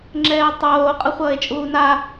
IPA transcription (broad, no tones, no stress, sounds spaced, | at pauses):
ŋ͡ǁ ɛː tˤ oː qʼ ʌ χʷ ʌː e̯ t͡ʃʼ uː n a